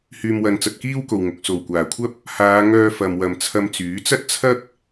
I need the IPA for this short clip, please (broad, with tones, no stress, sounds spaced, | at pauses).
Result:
h yː˨ m w ɐ˨ n t͡s ɐ˨ t̚ k iː˥ w k o˨ w ŋ ʊ˨ k̚ s o˨˩ w kʷ aː˨˩ kʷʰ ɐ˥ p̚ | h aː˨˧ ŋ œː˧ f ɐ˨ m w ɐ˨ m t͡sʰ ɐ˧ m t͡s yː˨˥ t͡s ɐ˥ t̚ t͡sʰ ɐ˥ k̚